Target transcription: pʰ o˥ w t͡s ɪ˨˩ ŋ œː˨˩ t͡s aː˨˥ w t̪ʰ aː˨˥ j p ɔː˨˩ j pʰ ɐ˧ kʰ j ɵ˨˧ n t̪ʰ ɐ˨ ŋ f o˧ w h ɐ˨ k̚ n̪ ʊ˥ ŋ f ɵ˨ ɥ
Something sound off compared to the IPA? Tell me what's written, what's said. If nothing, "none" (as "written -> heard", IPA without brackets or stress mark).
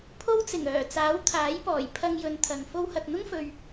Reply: kʰ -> ŋ